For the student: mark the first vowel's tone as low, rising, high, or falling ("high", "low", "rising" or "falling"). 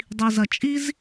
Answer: low